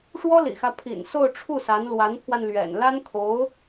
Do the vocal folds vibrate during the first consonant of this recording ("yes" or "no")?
no